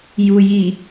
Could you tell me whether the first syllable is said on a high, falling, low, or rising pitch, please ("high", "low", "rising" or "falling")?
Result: low